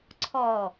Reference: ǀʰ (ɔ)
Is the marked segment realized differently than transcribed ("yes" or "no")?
no